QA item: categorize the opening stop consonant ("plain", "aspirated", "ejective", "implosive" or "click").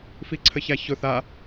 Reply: click